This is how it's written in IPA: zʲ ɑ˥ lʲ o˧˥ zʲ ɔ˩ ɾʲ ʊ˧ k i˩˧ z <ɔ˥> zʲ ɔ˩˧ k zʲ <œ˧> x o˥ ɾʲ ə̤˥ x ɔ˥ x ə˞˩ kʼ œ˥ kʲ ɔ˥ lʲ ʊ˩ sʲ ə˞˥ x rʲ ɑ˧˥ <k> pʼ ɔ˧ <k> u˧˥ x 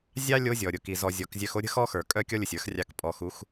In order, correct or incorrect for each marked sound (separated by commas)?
incorrect, correct, correct, incorrect